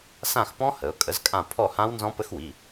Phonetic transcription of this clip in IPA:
sã˦˨xpɔ̃˦˥ hə˩˧ʊ̯kʼə˩˥zkʼã˦˨ pʰɔ˦˨hã˦˥w nzɔ̃˦˥pə˦˥xwi˩˧˩

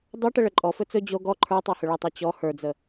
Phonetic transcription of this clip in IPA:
dˤoʈə ɭəǃʼɔ fɵt͡sɵ d͡ʑo ɡɔ ǃʰə˞ tˤohɵɭətˤo t͡ɕɔ hə˞d͡zə

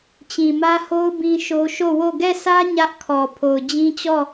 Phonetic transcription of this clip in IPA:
t͡ɕĩ˨mä˦ho˦ʊ̯ bĩ˦ʃo˦ ʃo˦˨wo˦˨ ɡɛ˦˨sʰä˦ ɲä˦ʔkʰɔ˨ pʰo˨ʊ̯d͡ʑĩ˦t͡ɕɔ˦˨

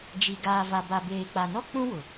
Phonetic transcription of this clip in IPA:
d͡ʒi˨ ɡaː˨va˨ ba˨beː˨k͡pa˨nɔ˦ k͡pũ˦wʊ˨

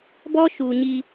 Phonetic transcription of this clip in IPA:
bɔ˦ʃu˨ɲi˦

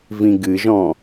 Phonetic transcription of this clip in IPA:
vĩɡɨʒɔ̃

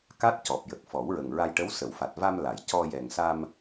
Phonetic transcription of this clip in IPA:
ka˦˥t̚cɔ˨˩p̚jə˨˩k̚ fɔ˨˩˦wɹə˨˩ŋɹa˧jʈə˧˥w sə˨˩˨wfa˨˩t̚va˧m la˨˩˨jcɔ˧ jɛ˨˩ŋsa˧m

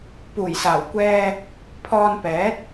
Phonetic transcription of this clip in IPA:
puː˨˩jsaː˨˩w kʷɛː˧ | pʰɔː˧npɛː˨˥t̚

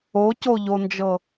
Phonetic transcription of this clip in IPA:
ocoʎond͡ʒɤ

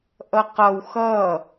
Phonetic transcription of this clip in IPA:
ʔʌqʌw xʌ

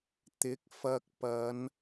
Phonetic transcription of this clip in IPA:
t̪ɪ˨˥k̚fɐ˧k̚ pɐ˨˧n

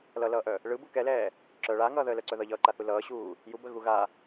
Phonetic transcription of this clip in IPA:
lʌlʌːʔœ | ɭɯ bukɛlɛː | ǁœ ɭa ŋʌːðəːlœǀœ ðʌʎʌːǃaθu lʌːɕuː | jubə ɣuɣa

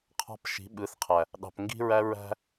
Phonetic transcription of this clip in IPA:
qʰɑ̤˧p ʃi̤˨˦ɓɯ˨˦θ qʰæ˨ | ɗɑ̤˨p ŋɡi̤˧ɹæ˧ ɹæ̤˦

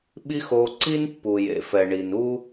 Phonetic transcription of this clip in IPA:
ɓi˥xo˧ ǀi˥npːu˩jḛ˩fɛ˩ ɳi˩nu˥

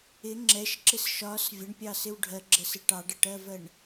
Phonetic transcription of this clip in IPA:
ɪ ŋ͡ǁɛʃǁɪs ʃɒs vʲəɳpʲɑsɪw ɖʱɜɡ͡ǁəsɪ ʈɑɖəʈɜvɜɳ

